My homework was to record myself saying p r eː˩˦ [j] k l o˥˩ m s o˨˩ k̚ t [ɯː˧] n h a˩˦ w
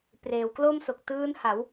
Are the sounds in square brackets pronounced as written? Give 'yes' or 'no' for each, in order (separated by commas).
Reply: no, no